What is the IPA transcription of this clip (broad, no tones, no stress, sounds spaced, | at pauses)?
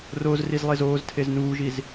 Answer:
r o z r i z lˠ e z oː z tʰ e z n uː ʒ i z